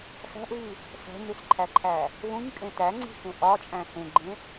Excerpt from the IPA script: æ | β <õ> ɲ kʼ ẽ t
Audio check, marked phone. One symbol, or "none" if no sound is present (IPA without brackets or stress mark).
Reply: ũ